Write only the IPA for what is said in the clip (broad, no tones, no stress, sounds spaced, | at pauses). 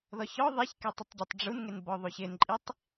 ð ɔ ç ɔ ðˤ i ç k ɛ tˤ ʊ tˤ ɟ o tˤ ɖ͡ʐ u n ŋ e n b ɔ ðˤ u ç ɪ n ǃʼ i tˤ